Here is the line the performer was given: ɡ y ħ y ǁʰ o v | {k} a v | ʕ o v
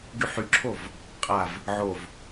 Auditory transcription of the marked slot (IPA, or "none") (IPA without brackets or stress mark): qʼ